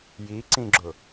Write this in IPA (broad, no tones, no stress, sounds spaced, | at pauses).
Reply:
j i ǀ ĩ ɡ͡ǁ ʊ